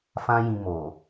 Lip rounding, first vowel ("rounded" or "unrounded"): unrounded